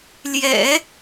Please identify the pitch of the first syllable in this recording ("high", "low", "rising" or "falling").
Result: low